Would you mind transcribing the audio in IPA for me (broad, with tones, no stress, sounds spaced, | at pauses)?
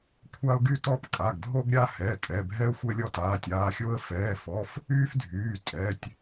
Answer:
kʷʰ a˦ ʊ̯ ɡ y˦ t ɔ˦ p kʼ a˩˧˩ ɡ dʱ o˦ ɡ ɾʲ a˦ h ɛ˩˧˩ tʼ ɛ˩˧˩ bʱ ɛ˦ ʊ̯ xʷ ɛ˦ lʲ ɔ˦ t aː˩˧˩ tʲ aː˩˧˩ xʲ o˦ ə̯ f ɛː˩˧˩ f ɔ˩˧˩ f | yː˦ f dʱ yː˩˧˩ tʼ ɛ˩˧˩ tʲ